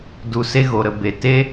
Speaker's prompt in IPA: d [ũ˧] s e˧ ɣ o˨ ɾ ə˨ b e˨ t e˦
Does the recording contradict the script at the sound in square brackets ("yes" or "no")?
yes